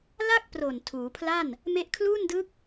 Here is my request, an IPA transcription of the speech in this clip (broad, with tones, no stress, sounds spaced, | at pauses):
l a˥˩ k̚ p r o˨˩ n tʰ uː˩˦ pʰ l a˥˩ n | m e˦˥ ʔ kʰ l uː˥˩ n d ɯ˦˥ k̚